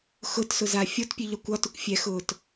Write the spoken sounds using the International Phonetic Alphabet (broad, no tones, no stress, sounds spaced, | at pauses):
x ʊ t s ʊ z a fʲ o t pʲ ʉ ʎ ɒ kʷ ɒ t ʊ kʷ fʲ ɛ x ʊː t